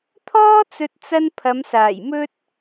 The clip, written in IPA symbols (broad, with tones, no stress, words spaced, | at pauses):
t̪ʰɔː˥t͡sɵ˨t̚t͡sɐ˧n pʰɐ˨˧msaː˨˩jmɵ˥t̚